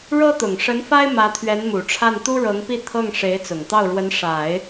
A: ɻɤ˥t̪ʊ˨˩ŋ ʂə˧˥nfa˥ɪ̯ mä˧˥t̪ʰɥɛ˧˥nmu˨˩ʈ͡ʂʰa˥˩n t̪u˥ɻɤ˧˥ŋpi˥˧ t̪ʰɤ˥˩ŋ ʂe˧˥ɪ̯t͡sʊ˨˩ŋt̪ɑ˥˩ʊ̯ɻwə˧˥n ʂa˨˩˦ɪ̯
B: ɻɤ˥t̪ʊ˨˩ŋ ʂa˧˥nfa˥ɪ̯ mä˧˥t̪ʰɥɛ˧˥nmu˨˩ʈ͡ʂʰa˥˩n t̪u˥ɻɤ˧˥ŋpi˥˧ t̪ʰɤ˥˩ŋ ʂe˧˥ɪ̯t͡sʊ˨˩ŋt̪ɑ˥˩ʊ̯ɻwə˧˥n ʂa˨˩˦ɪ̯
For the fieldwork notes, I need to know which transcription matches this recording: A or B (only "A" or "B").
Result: A